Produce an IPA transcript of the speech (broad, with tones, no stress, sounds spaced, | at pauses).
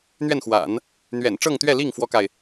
n̪ ɥ ɛ˥˩ n x w a̰˨˩˦ n | n̪ ɥ ɛ̰˨˩ n ʈ͡ʂ ɤ˥˧ ŋ t̪ ɥ ɛ˥˧ l i˥˩ ŋ f w ɔ˥ k a˨ ɪ̯